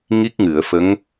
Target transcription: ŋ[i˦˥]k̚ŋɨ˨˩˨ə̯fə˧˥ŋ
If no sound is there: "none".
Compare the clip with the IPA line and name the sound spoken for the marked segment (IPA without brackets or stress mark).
i˦˥